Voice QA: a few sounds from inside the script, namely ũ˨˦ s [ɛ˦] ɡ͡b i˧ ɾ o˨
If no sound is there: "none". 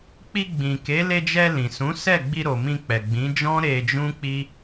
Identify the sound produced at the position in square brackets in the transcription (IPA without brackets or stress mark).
ɛ˦˨